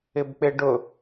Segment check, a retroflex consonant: present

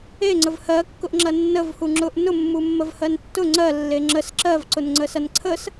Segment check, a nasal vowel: absent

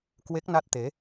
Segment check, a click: absent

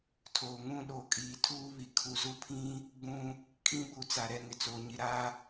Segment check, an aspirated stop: present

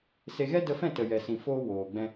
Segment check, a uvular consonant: absent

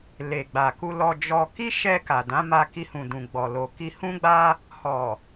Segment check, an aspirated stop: absent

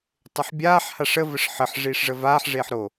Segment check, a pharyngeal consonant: present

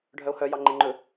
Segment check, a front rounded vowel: present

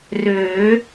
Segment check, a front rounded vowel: present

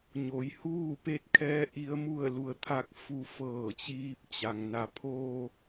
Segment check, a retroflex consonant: absent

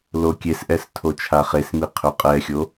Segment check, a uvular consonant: present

